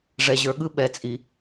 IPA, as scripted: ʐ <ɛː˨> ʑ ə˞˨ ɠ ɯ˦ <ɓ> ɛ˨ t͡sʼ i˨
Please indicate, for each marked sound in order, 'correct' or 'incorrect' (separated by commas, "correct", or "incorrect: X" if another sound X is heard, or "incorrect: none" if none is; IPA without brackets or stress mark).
incorrect: ɛ˨, correct